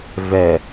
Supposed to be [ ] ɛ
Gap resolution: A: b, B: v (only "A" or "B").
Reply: B